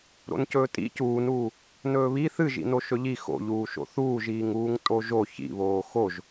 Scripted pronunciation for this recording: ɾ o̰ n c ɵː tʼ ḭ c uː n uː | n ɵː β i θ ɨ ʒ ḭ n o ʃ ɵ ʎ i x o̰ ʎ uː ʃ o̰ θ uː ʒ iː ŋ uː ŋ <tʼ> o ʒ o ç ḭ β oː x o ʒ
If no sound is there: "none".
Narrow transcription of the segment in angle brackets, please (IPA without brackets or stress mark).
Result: tʼ